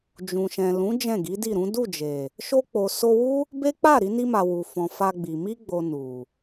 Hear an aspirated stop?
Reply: no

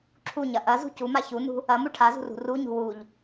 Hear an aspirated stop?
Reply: yes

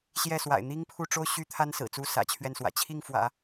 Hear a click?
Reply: no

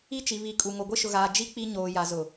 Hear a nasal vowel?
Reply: no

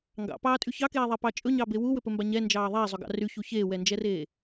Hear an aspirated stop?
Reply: no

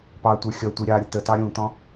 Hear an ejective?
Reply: no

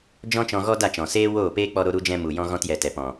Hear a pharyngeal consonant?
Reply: no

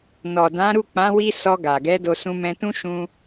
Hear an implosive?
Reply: no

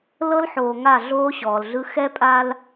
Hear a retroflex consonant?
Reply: no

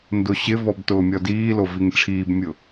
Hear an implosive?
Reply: no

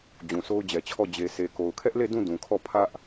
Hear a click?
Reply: no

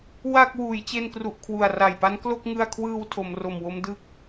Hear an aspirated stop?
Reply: yes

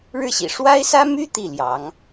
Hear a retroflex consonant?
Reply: yes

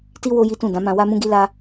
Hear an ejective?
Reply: no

